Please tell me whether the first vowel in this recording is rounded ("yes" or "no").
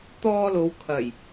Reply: yes